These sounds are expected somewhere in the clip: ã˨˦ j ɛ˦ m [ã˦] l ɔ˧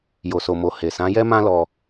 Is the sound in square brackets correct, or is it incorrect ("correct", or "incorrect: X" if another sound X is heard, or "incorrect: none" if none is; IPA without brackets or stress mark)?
correct